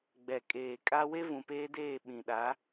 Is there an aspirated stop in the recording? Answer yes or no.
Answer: no